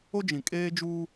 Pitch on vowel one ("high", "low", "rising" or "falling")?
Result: high